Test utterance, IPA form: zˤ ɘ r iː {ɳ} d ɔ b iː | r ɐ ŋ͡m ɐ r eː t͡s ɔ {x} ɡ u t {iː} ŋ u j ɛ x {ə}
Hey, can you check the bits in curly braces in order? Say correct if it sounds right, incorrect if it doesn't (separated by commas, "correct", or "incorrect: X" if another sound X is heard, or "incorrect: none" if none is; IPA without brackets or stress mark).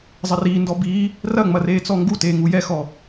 incorrect: n, incorrect: ŋ, incorrect: eː, incorrect: ɔ